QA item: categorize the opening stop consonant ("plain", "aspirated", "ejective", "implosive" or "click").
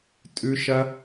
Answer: ejective